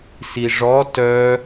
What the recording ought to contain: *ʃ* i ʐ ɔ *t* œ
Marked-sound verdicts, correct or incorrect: incorrect: s, correct

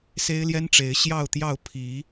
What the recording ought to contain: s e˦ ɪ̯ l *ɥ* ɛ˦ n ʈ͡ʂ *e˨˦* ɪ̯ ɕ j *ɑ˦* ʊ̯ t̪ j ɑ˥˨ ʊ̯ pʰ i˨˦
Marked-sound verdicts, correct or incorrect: incorrect: j, correct, incorrect: ɑ˥˨

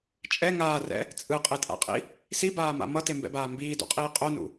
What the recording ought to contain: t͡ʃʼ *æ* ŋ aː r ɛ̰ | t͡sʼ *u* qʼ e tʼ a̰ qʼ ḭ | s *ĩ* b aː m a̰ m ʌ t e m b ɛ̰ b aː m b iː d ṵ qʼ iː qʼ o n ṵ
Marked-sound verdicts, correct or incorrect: incorrect: ɛ, incorrect: ɯ, incorrect: i

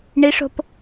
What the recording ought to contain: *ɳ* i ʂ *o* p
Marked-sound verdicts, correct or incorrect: correct, incorrect: o̤

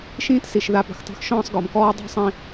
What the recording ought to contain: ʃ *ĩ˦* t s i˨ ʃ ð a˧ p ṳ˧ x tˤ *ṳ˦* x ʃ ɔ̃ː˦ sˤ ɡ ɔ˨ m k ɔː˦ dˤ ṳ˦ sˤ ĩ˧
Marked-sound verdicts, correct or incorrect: incorrect: ĩː˦, correct

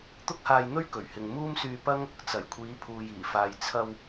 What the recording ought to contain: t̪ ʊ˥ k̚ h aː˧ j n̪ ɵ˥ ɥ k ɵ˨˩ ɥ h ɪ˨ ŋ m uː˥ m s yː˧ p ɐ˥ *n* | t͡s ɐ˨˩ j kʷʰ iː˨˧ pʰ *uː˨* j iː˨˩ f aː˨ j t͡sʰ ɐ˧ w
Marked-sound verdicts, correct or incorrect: incorrect: ŋ, correct

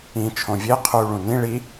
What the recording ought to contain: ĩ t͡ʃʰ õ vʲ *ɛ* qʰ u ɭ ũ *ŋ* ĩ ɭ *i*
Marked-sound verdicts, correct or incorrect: incorrect: e, incorrect: n, correct

